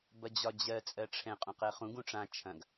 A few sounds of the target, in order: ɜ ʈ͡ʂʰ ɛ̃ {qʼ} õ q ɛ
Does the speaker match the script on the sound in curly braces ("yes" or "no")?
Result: yes